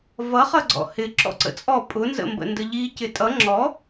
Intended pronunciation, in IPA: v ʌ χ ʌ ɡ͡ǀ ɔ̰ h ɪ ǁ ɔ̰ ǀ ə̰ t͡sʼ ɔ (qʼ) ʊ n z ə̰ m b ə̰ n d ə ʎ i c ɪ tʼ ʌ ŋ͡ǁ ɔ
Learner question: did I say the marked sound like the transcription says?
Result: no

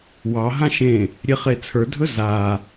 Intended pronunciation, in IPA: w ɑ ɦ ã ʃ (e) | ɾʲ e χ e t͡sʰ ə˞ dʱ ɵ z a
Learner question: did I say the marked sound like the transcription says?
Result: no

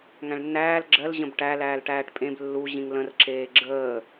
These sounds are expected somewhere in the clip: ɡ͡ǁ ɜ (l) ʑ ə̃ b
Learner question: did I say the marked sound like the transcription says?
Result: yes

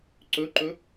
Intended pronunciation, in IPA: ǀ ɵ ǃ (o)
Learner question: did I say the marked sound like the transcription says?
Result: no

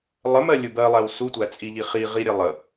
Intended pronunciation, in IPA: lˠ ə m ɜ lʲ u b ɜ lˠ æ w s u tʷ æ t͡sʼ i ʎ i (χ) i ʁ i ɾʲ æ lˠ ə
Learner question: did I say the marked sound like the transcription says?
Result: yes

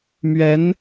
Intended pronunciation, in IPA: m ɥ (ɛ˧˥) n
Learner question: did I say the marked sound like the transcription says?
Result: yes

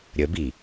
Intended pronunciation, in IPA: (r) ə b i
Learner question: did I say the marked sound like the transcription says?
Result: no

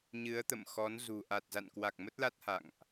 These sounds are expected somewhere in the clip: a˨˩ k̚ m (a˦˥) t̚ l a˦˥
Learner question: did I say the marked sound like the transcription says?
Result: no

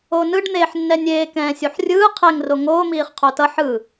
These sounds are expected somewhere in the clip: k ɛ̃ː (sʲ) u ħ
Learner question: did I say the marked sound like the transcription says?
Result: yes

